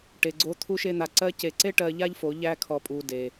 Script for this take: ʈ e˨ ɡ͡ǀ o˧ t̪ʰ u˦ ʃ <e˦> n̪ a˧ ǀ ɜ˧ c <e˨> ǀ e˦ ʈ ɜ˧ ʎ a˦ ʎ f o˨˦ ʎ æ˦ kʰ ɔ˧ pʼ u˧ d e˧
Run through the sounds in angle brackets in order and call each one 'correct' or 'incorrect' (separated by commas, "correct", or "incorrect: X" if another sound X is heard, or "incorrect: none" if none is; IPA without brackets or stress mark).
correct, correct